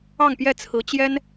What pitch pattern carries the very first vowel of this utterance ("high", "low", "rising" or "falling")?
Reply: falling